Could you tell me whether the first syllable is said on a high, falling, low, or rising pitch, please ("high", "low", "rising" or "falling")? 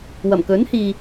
low